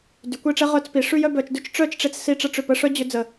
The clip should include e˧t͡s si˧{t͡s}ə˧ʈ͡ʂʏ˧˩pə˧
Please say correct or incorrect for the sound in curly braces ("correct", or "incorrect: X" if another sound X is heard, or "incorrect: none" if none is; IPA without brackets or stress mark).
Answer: incorrect: ʈ͡ʂ